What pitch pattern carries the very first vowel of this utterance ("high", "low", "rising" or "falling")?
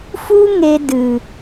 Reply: high